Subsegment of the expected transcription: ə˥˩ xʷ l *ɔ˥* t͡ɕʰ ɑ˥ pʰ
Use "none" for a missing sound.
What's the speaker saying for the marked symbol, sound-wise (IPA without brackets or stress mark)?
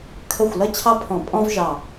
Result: ʌ˥